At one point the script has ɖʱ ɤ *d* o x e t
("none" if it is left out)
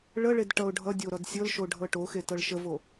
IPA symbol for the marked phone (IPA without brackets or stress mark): ʈ